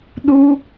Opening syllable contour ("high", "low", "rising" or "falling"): high